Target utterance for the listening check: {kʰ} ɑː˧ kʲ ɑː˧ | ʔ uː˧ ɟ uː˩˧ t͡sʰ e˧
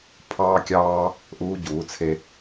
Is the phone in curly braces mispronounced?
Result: yes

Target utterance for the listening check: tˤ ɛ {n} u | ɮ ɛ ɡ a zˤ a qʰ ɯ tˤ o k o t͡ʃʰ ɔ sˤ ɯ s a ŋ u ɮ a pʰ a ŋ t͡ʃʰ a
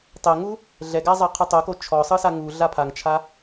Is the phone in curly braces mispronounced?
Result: yes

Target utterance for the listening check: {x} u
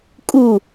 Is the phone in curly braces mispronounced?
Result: yes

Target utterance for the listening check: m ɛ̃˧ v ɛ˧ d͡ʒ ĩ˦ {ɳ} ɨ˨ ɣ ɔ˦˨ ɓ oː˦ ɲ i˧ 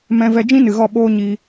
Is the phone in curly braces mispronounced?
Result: yes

